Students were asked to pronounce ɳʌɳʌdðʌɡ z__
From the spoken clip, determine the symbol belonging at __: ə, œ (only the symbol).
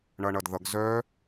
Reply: œ